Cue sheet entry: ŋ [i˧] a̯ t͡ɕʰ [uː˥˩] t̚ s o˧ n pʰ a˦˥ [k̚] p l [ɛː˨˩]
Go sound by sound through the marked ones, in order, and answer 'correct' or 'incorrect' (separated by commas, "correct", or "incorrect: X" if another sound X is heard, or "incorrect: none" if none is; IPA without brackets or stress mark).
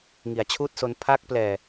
incorrect: i˩˦, correct, correct, correct